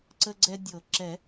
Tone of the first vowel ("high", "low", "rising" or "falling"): high